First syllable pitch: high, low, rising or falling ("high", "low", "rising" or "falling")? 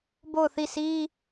falling